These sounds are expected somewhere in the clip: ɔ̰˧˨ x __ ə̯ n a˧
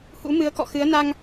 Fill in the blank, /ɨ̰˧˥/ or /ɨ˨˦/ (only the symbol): ɨ˨˦